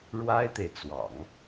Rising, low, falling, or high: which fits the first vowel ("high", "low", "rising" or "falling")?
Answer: high